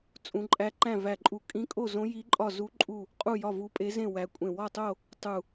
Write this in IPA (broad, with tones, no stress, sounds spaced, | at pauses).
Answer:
t͡sʼ ũ˦˥ ǃʼ æ˦˥ ǃ æ̃˥˧ v æ˥˧ ǃʼ u˥˧ kʼ ĩ˦˥ kʼ o˥˧ z õ˦˥ j i˦˥ ǃʼ ɒ˥˧ z u˦˥ ǃʼ u˥˧ | qʼ u˥˧ j ɒ˥˧ v u˦˥ pʼ e˦˥ z ẽ˥˧ w æ˦˥ kʷʼ ẽ˥˧ w ɒ˥˧ tˤ o˥˧ | tˤ u˥˧